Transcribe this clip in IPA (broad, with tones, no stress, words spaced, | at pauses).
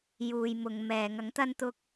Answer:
juː˨jmʊ˨ŋmɛː˨ ŋɐ˨˥ŋt̪ɐ˥n t̪ʊ˥k̚